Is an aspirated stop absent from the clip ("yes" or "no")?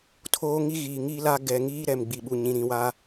no